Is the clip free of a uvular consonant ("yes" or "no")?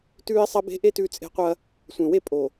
no